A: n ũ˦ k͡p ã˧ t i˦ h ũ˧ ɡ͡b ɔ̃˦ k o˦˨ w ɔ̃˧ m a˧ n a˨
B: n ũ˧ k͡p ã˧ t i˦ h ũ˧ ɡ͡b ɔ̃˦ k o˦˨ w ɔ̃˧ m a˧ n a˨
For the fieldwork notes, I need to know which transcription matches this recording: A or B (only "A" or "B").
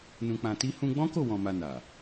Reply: B